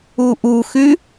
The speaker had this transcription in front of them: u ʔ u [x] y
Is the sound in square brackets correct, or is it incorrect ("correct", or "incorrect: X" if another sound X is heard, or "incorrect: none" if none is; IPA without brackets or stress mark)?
correct